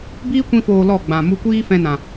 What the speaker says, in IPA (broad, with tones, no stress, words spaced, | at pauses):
biː˦kʷĩ˧foː˨ lɔ˦˨ɡ͡bã˨ mu˧kʷiː˦fɛ̃˧ nã˨